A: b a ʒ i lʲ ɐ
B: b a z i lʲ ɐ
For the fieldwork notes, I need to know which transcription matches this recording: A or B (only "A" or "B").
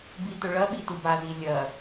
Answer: B